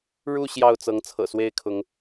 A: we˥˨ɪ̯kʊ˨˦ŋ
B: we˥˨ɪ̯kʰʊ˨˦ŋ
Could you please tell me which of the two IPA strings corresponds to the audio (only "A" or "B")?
B